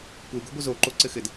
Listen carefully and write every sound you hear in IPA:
kʷ e ɡ o ɡʷ ɘ z o ǃ o ǀ ɘ x ɘ d

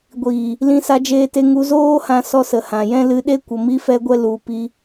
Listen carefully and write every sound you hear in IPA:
ɡʷ iː˨ | l ĩ˧ s a˧ d͡ʒ eː˧ t e˧ ŋ u˧ z oː˦ h ã˧ s ɔ˧ s ə˨ h ã˨ j ɛ̃˧ l ɨ˧ ɗ e˦ kʷ ə˨ m i˧ f ɛ˧ ɡʷ ɛ˧ l u˨ p i˧

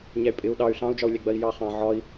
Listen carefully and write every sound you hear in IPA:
ɲ æ y̯ pʼ ɪ u̯ ɗ ɑ y̯ ɬ ɑ̃ u̯ d͡ʒ ɒ u̯ lʲ æ ɡ͡b ɜ i̯ j ɑ χ ɑ̃ ʕ ɒ i̯

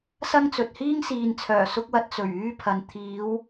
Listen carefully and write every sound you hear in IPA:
s ɐ˥ ŋ t͡s ɵ˨ t̚ h iː˥ ŋ s iː˨ n t͡sʰ œː˨˩ s ʊ˥ k̚ w ɐ˧ t̚ t͡s ɵ˨˩ ɥ yː˥ pʰ ɐ˨ n t̪ʰ iː˨˧ w

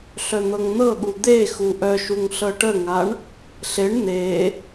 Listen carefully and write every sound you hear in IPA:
ɬ œ n̪ ɤ ŋ n̪ ɤ ɠ u d̪ e x u ʔ œ ʃ u ŋ ɬ ɤ ʈ ə ŋ a ɳ | ɬ e ɳ n̪ e

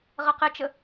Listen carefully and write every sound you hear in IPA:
ʁ ɜ q ɪ t͡ʃ ə

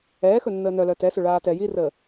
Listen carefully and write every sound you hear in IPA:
ɛː x ɵ nː əː n œ l œ t ɛ s ɵ ɭ aː t ɛ j i r əː

